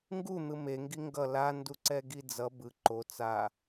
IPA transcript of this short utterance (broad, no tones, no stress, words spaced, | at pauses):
ŋɡun̪ɯ meŋɡi ŋɡʌ landuǀɛɡi d͡zʌ bɯ ǃo t͡sa